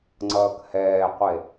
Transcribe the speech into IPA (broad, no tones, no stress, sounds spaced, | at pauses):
ŋ͡ǀ ʌː k h ɛː qʷ e